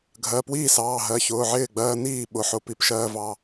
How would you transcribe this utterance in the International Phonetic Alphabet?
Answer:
ɡʱ ɜ˩˧˩ p w iː˥˩ s ɑː˩˧˩ ɦ ɜ˩˧˩ ç ʊː˩˧˩ ʕ ɪː˥˩ ɡ͡b ɜː˧ n iː˥˩ ɓ ʊ˩˧˩ ħ ʊ˧˩˧ p i˧˩˧ p ʃ ɜː˧ v ɑ˩˧˩

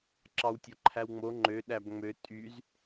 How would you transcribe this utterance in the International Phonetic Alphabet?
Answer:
ǁ ɑ w tʲ o ǃʰ æ w ŋ͡m o ŋ͡ǃ ø ɗ æ b ŋ͡m ø tʼ y z

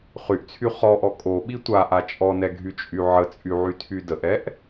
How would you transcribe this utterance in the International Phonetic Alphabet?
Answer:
χ y ʔ t͡sʰ y χ ɔ ʔ ɔ kʼ o ɓ i tʷ a ʔ a t͡ʃʼ ɔ n ɛ ɡʱ y t͡ʃʼ y ʕ ə t͡sʼ y ʕ y tʰ y d ə ʔ ɛ ʔ

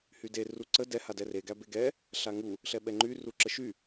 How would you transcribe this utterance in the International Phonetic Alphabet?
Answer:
h y d e r u ǀ ə d ɛ h a d ɛ r e ɡ æ b e ɡ ɛ | ɬ a ŋ u | ɬ ɛ ɓ ɛ ŋ͡ǃ y r u ǁ ə ʃ y

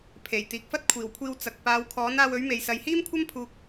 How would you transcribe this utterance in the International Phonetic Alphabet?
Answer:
pʰ e˨˩ j t̪ iː˨ k̚ f ɐ˥ t̚ kʷʰ iː˨˩ w kʷʰ iː˧ w t͡s ɐ˨ k̚ p aː˨˧ w kʰ ɔː˨˥ n aː˧ w ɵ˨˥ ɥ m e˨ j s ɐ˨ j h iː˥ m kʷʰ ɐ˥ m pʰ uː˧ k̚

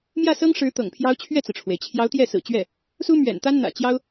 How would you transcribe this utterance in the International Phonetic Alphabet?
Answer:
m j ä˥˩ s ɤ˥ ŋ ʂ ɻ̩˧˥ t̪ ɤ̰˨˩ ŋ pʰ j ɑ˥ ʊ̯ t͡ɕʰ ɥ ɛ˥˩ t͡s ɹ̩˩ ʈ͡ʂʰ w e˩ ɪ̯ t͡ɕʰ j ɑ˧˥ ʊ̯ t̪ j ɛ˥˩ s ɹ̩˨˩ t͡ɕ ɥ ɛ˥˩ | s u˥ m ɥ ɛ̰˨˩ n t̪ a˥ n n̪ ä̰˨˩ t͡ɕ j ɑ˥ ʊ̯

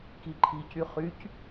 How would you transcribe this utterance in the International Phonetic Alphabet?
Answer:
k i ǃʰ i c y χ y c

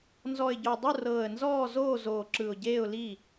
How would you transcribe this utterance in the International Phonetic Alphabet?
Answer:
n z ɔ˨˩ ɪ̯ ɟ o˨˩ dˤ u˥˩ r ɤː˨˩ ə̯ n z ɔː˥˩ z oː˥˩ z oː˨˩ ǁ ɯ˨˩ ʊ̯ ɟ eː˥˩ ʊ̯ l i˥˩

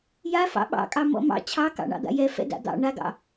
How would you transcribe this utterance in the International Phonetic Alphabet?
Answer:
j a f ɑ̰ ɓ ɑ̰ kʼ ɑ m ɔ̰ m ɑ̰ t͡ɕʰ ɑ k ɑ̰ ɳ ɑ̰ d̪ a̰ j ɛ f ɛ̰ d a̰ d̪ ɑ̰ ɳ a ɡ ɑ̰

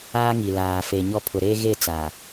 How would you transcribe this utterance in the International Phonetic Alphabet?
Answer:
aː˦ ŋ i˨ l aː˨ f e˨ ɲ ɔ˦ pʰ ʊ˨ ɾ e˦ ɣ e˦˨ t͡s a˨

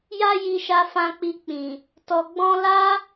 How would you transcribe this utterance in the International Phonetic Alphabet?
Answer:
j a˦ j i˧ ʃ a˧ f ã˧ k͡p i˧ k͡p ĩ˨ | t ɔ˨ ɡ͡b ɔ̃˧ l a˦

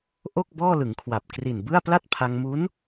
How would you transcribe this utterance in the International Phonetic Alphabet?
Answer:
ʔ o˥˩ k̚ b ɔː˥˩ l ɯ˩˦ ŋ kʰ w a˨˩ p̚ k r i˨˩ n b ɯ˥˩ a̯ p l a˥˩ t̚ pʰ a˧ ŋ m u˦˥ n

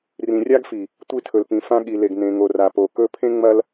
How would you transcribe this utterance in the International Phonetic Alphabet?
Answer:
r ĩ˨ rʲ a˦ ɡ f i˨ | tʷ i˦ tʰ ɵ˨ l p ĩ˨ f ã˦ ɠ i˨ l e˨ ɡ n ẽ˨ ŋ o˨ r a˨ p o˨ k ɵ˦ pʰ ẽ˦ ŋ͡m ɐ˦ l

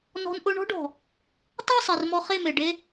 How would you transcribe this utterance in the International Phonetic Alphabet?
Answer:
n ɔ̤˧ n ʔ ʊ˧ ɳ ɔ̤˦ ɖ ɔ̤˨ | tˤ e˦˨ sˤ e˨ r m ɔ˧ χ e˦˨ m e˨ ɖ e˧

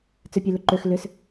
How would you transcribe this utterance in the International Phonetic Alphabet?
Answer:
t͡s ø pʲ ø l ʏ ǃ ø x l ʏ s

